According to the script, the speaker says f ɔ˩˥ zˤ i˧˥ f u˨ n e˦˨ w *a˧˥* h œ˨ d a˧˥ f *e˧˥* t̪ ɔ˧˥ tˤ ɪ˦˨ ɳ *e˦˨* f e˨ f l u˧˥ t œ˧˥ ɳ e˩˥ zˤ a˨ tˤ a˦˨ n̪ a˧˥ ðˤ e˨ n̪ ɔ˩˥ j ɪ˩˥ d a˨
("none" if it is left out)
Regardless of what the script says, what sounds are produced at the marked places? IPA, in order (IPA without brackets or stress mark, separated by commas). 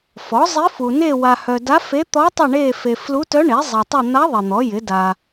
a˨, e˧˥, e˦˨